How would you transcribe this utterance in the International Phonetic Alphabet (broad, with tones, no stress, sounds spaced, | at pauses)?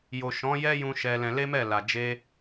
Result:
j o˨ ʃ ɔ̃˨˦ j ɛ˦ j ũ˧ ʃ ɛ˧ l ɛ̃˧ l e˦ m ɛ˦˨ l a˨ d͡ʒ e˧